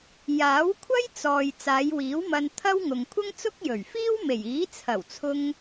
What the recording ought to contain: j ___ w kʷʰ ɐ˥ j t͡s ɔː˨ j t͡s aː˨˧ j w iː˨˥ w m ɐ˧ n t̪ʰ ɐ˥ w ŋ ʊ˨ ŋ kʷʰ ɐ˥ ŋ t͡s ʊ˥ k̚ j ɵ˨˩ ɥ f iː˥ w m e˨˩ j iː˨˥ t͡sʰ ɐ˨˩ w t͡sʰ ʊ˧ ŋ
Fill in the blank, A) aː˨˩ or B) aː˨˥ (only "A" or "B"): B